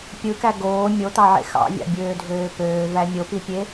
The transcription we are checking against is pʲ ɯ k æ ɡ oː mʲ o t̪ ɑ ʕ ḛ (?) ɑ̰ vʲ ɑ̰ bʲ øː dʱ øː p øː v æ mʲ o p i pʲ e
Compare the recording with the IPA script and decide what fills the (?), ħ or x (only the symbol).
x